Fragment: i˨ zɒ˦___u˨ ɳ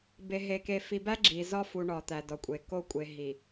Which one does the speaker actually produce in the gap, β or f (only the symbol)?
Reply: f